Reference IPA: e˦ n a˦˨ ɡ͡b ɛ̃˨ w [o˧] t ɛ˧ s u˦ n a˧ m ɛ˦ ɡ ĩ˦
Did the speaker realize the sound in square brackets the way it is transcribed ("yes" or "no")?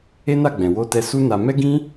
yes